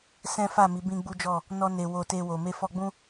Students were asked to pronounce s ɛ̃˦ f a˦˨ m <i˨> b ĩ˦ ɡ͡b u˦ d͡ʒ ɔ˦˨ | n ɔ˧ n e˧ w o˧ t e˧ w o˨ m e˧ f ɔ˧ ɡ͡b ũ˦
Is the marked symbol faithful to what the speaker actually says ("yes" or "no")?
no